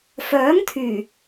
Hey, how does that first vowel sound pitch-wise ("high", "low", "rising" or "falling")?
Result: rising